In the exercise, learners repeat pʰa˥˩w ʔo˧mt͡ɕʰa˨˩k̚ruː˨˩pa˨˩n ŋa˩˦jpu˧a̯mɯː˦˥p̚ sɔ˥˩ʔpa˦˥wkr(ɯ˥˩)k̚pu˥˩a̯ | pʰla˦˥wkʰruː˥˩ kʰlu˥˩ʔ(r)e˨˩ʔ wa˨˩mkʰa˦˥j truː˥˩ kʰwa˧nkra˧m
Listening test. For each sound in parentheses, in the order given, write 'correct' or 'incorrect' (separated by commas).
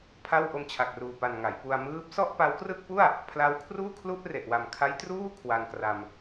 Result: correct, correct